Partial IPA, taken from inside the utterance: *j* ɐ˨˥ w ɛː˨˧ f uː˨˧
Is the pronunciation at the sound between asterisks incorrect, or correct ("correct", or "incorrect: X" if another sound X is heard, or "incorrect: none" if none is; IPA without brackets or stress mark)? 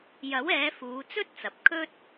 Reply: correct